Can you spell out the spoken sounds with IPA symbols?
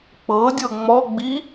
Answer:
k͡pɤdʲɤ ŋ͡mɔɡ͡bi

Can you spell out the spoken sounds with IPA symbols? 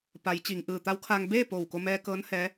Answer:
pa˩˧jt͡ɕi˩ŋ ʔɯː˧˩t̪a˧˥wkʰaː˧ŋ beː˥˨ poː˧˩wko˧mɛː˧kɤː˧˥n hɛː˧˥

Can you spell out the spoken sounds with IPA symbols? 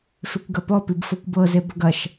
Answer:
fekʷɡɐpɔpib fɤkʷbɤze bɐɡɐʃ

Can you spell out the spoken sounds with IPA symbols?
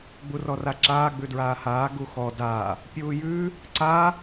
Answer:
ɡ͡burɔraǁaː ɡ͡bʉdɹaːhaː ɡuxɔ daː | pʲuːjʉː | ǀaː

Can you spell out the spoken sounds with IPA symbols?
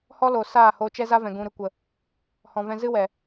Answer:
hɔ˦lo˨ saː˦˨ho˧ t͡ʃɛ˦za˦vɛ̃˨ ɡũ˨ɾɨ˨ kʷə˨ | hɔ̃˨vɛ̃˧zɨ˦wɛ˨

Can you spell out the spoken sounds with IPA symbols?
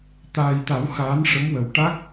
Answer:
t̪aː˨˩jt̪a˨˩˦w xaː˧˥nʂə˧˥mwə˨˩w ʈa˦˥k̚

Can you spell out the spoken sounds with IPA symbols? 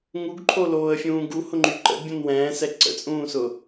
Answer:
ŋuɡǃʰoloːə̯fʲũː ɡuhʊŋ͡ǃy ǃə̰bʲõn wɛ̃ːsɛ ǀə̰t͡sʼũːsʊ

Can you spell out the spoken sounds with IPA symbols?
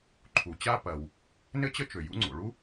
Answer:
ǃʰu˩t͡ɕa˥ pɐ˩w | nɘ˥t͡ɕə˥t͡ʃø˩ jṵ˥ŋ͡ǀo̰˩ ɭu˥

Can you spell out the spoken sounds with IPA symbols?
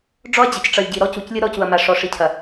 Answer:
ɖ͡ʐɔ˦ɐ̯d͡ʑə˨c ʈ͡ʂʌ˨lʲɟi˨ ɾɔ˦cu˨clʲɯ˦ ɾɔ˦cu˨ɐ̯ma˨ ʂɔ˨ʂi˨cʰɐ˨

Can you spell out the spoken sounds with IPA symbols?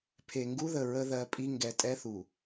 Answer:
pʰe˨ŋɡu˦ðə˨ ɹə˦ðɜ˨˦pʼi˦ ŋɡɛ˨˦tʼɛ˦θu˨

